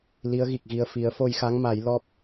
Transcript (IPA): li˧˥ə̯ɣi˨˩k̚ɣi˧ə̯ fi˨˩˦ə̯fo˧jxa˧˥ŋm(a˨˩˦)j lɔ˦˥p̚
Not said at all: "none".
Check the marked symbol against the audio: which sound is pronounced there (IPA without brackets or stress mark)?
a˨˩˦